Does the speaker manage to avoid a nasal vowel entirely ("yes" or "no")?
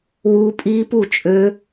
yes